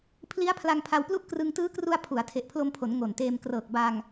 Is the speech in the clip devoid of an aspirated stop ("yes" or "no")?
no